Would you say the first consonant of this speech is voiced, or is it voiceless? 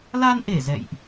voiced